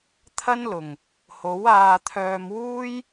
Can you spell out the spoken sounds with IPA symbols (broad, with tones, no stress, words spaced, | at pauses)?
t̪ʰɐ˥nlʊ˨˩ŋ | ho˨˥waː˧t̪ʰœː˧mwuː˥j